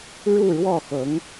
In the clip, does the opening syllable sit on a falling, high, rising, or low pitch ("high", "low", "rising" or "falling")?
falling